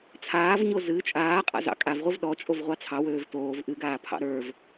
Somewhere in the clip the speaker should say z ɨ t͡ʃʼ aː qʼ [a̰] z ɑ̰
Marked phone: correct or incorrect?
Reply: correct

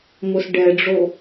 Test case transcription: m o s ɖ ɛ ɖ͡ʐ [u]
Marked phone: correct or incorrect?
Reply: incorrect: o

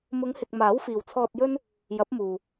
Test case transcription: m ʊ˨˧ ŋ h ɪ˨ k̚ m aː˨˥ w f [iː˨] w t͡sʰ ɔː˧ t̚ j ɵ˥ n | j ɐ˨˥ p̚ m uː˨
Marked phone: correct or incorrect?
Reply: correct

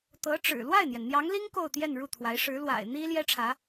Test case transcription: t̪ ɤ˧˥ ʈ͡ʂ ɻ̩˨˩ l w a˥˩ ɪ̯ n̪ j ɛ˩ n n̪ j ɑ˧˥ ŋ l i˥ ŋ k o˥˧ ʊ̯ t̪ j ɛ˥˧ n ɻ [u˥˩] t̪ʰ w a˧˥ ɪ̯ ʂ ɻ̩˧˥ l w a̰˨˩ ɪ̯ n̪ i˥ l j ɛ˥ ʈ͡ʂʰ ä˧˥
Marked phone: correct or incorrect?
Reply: correct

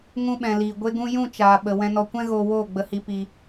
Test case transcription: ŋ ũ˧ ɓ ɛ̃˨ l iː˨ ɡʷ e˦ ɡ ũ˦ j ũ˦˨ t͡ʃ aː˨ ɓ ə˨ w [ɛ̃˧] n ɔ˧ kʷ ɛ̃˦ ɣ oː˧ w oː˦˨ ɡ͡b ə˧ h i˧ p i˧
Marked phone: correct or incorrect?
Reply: correct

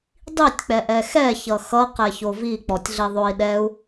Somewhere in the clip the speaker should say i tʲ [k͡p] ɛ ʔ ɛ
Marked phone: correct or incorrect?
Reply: correct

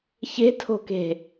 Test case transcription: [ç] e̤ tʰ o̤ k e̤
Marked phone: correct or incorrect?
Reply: correct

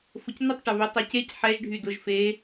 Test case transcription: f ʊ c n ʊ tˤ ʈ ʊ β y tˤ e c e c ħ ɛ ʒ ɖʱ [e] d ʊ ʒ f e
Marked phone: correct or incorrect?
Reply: incorrect: y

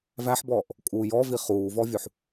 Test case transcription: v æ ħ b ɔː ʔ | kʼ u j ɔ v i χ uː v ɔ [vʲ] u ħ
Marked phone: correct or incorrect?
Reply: correct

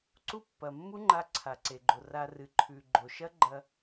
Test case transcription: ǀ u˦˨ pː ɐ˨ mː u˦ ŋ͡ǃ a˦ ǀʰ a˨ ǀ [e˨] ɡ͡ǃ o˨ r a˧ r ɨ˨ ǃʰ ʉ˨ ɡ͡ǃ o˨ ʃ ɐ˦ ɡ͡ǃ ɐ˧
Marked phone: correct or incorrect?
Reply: correct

